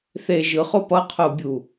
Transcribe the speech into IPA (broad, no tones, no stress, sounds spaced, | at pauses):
θ e ʒ ɯ χ o p ʌ qʰ o bʲ u